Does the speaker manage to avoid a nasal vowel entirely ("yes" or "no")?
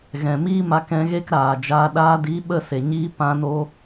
no